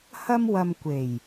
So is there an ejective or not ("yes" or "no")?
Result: no